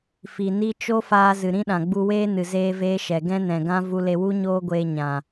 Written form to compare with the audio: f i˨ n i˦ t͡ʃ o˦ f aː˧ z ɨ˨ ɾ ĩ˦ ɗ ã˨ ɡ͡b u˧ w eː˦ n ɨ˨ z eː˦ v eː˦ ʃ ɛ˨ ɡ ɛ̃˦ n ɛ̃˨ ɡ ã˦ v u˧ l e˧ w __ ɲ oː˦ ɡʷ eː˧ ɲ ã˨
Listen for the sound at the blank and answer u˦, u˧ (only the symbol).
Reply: u˦